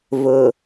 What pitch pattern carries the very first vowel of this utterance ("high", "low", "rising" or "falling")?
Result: low